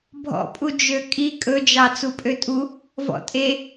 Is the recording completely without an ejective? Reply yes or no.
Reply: no